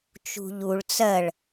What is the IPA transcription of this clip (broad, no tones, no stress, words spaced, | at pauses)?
t͡ʃṳʎuɭ t͡sɜɭ